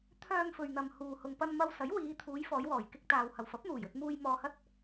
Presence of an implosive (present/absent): absent